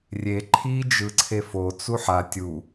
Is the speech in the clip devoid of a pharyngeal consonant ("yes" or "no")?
no